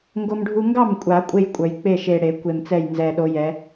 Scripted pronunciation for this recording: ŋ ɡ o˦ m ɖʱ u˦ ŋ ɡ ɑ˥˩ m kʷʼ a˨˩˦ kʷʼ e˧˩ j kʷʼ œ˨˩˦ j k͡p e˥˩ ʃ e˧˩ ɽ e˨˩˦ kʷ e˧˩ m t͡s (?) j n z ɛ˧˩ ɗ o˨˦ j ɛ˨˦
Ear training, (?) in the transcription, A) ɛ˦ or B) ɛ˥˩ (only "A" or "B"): B